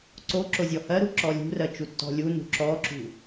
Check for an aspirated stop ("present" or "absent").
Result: absent